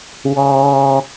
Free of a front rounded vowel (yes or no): yes